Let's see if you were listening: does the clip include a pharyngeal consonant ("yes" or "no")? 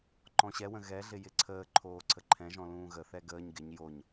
no